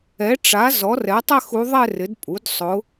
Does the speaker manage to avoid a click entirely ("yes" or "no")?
yes